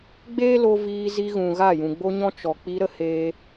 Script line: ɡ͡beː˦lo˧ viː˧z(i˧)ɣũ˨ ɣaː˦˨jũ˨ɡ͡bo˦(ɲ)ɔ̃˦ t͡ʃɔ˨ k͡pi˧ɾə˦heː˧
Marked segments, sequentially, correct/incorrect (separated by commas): correct, correct